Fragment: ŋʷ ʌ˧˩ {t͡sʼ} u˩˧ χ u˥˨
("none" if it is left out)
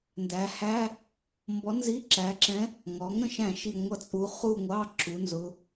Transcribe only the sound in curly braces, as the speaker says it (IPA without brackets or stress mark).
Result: t͡sʼ